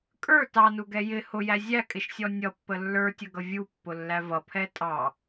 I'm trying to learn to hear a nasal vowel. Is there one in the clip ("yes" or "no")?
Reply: no